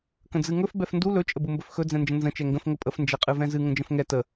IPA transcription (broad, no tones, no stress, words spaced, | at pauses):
kə̃d͡zɨŋɵf bɛfndu lɵ t͡ʃʼəbumbɵfxɵ d͡zɛ̃nd͡ʒə̃nzə̃ t͡ʃɛŋɡə̃f ŋəpʼəf nd͡ʒɛqʼɨvɛ̃zɨ ŋə̃d͡ʒə̃fŋɛ tə